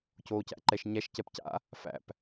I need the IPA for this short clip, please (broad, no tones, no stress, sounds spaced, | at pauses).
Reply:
c oː c æ̰ ǃ ɛ ʃ ɲ æ ʃ c ɛ p c a̰ | f æ̰ p